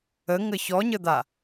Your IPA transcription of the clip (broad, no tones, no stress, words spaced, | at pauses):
əŋə çɔɲəd̪a